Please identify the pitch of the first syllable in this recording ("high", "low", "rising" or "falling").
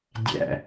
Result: falling